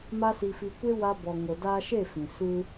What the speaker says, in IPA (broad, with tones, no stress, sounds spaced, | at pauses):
m a˦ s i˧ f i˧ kʷ e˦ w a˧ b ɔ˨ ŋ o˨ d aː˧ ʃ e˦˨ f ĩ˨ s u˧